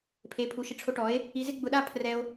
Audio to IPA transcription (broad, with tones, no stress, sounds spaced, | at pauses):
pʰ e˨˦ pʰ u˨˦ ʃ ɪ˧ ʈ͡ʂʰ o˧ ʈ ɔ˨˦ e̯ | i˧ z ɪ˦ ɡ͡b ʊ˧ ɗ a˦ pʰ r ɛ˧ o̯